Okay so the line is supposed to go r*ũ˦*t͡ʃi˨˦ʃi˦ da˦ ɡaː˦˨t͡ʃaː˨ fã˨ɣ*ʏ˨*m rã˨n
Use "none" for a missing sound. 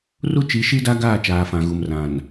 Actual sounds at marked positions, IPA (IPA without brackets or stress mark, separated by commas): u˦, u˨